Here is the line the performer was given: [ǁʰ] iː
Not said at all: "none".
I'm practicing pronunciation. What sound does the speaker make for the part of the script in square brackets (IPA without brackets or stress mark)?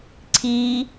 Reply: ǀʰ